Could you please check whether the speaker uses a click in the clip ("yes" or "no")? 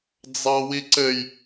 yes